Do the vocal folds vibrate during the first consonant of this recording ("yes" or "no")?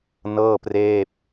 yes